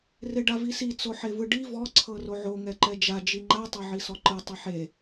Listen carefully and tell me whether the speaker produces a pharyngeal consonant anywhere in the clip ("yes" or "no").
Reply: yes